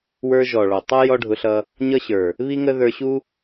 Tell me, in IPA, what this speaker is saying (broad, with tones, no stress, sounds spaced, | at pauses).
w ə˞˧ ʒ ɔ˨ ɭ ɔ˨ tˤ ʌ˦ j ɔ˦ ɖʱ ʊ˧ ɬ ʌ˧ | ɲ ʌ˦ ɕ ə˞˨ | β i˦ ŋ ə˦ ð ə˞˧ ɕ u˦